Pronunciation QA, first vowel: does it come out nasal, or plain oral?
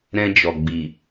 nasal